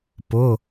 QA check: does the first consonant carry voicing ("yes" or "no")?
no